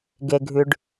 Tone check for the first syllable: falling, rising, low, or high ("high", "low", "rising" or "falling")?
low